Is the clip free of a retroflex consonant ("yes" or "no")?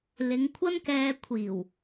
yes